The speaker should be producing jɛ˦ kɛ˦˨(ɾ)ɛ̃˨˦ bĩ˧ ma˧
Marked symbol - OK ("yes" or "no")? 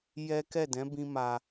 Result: no